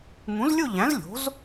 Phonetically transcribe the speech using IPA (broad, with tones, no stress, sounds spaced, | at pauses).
ŋ ũ˨˥ z lʲ o˥˧ ʎ æ̃˨˥ z lʲ o̤˨˥ z